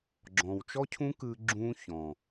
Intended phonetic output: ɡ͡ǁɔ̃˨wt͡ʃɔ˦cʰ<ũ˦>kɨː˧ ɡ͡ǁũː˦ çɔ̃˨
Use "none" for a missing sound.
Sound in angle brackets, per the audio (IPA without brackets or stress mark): ũ˦